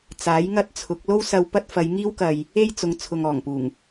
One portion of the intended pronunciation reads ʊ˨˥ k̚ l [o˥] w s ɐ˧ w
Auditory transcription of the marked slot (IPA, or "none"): o˥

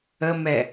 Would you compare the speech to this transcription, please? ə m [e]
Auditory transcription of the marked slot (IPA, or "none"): ɛ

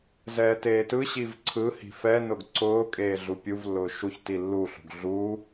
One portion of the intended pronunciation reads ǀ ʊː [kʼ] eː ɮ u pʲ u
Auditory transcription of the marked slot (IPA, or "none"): kʼ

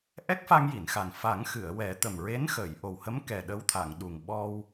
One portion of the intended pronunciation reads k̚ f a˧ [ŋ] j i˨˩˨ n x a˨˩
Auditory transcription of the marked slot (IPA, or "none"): ŋ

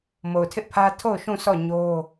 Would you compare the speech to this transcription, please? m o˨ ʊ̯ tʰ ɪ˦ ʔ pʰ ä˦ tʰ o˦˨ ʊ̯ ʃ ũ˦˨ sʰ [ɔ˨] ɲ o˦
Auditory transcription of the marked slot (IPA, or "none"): ɔ˦˨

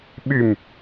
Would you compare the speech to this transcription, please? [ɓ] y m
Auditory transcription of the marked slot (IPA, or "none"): ɓ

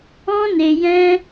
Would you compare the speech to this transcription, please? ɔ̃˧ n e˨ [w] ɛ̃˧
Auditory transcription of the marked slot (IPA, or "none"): j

